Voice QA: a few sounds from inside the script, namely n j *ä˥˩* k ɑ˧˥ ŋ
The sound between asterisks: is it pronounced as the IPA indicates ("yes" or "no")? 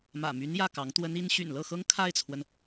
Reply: yes